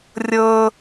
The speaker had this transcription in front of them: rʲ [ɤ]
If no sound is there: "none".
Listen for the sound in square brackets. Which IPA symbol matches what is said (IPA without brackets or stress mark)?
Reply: ɤ